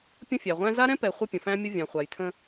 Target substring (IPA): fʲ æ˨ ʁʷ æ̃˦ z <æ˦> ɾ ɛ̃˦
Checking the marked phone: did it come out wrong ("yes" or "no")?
yes